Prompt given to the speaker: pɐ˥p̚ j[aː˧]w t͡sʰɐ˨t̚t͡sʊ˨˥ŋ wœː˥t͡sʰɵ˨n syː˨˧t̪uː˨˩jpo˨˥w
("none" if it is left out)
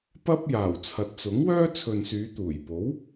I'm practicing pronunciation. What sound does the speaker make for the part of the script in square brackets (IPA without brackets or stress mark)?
aː˨˩